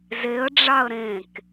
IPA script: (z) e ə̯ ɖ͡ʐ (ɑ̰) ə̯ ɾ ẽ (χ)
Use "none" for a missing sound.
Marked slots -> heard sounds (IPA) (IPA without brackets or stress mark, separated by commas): z, ɑ, k